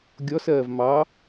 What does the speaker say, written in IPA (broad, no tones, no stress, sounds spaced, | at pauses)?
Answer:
ɡʲ ɔ s ɜː v m ɑ